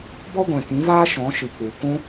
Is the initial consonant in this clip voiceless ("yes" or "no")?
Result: no